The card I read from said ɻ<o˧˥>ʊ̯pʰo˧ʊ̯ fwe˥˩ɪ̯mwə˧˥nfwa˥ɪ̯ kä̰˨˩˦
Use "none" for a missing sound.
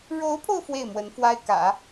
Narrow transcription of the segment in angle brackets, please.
o˧˥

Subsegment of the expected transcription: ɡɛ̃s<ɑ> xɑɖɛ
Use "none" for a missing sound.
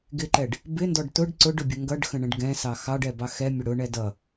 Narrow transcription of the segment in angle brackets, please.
ɑ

